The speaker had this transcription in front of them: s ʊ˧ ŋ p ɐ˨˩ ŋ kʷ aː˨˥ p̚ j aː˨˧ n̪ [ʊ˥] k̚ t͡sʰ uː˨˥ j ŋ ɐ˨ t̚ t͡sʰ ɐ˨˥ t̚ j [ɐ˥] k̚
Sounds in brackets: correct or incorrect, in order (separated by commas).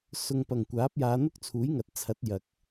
correct, incorrect